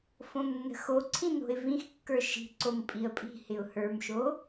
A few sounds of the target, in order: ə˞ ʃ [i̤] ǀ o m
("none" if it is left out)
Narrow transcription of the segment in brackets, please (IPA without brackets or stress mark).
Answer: i̤